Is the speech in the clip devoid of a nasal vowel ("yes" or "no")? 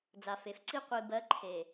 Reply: yes